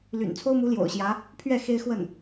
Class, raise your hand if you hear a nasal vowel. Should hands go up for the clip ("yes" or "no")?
no